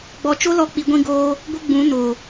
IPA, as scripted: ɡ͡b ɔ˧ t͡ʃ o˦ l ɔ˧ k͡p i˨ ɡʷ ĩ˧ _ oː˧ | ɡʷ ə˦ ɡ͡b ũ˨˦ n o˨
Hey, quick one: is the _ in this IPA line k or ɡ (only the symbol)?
ɡ